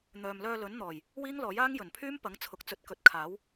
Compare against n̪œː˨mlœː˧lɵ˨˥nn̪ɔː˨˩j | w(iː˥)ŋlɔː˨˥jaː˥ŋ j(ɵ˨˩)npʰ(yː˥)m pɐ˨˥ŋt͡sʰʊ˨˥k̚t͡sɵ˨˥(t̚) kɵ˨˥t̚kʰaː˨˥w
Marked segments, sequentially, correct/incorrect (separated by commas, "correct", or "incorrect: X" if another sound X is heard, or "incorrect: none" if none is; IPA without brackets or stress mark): correct, correct, correct, correct